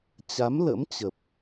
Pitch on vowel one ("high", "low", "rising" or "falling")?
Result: rising